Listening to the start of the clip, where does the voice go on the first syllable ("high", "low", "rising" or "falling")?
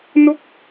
falling